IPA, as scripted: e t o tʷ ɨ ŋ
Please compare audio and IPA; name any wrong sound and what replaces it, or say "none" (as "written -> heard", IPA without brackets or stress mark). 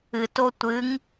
e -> ɨ